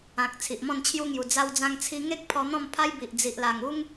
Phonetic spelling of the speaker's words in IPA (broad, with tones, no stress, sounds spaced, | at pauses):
ã˨ k̚ t͡sʰ i˨ ʔ m ɔ̃˥˧ n t͡ɕʰ j u˦ ŋ j u˨˩ d͡z a˧ w d͡z ã˧ ŋ t͡sʰ i˧ ŋ e˦ k̚ pʰ ɔ˧ n̪ ɔ̃˥˧ m pʰ a˦ j b i˨ ʔ d͡z i˨ ʔ l a˨˩ ŋ u˦ ŋ